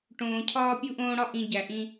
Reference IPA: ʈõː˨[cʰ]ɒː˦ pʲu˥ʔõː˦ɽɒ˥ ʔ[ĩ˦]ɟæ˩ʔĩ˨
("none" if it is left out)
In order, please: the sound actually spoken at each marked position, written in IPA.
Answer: cʰ, ĩ˨

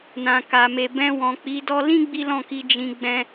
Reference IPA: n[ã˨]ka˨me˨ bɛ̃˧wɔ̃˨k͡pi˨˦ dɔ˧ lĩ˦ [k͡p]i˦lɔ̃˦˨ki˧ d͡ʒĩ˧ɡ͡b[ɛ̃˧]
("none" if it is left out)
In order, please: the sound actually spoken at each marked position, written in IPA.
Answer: ã˨, ɡ͡b, ɛ̃˦

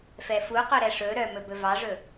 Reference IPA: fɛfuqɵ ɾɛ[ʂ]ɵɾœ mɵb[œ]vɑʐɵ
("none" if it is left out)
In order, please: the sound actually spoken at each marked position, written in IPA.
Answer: ʂ, ɵ

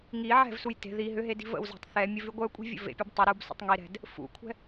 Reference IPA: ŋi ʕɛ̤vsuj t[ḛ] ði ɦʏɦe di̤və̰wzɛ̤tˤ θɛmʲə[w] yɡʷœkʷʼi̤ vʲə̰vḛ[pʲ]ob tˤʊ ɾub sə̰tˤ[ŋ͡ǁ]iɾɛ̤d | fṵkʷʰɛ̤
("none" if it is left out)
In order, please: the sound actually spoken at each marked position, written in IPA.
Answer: e̤, v, pʲ, ŋ

